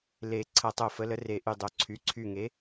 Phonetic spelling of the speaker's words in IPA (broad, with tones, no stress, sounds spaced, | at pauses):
l e˨˩ ǀʰ ɐ˨˩ tˤ o˨˩ f ə˩˧ l ə˩˧ r e˨˩ ʔ y˨˩ dˤ o˩˧ ǀʰ y˩˧ ǀʰ y˨˩ ŋ e˩˧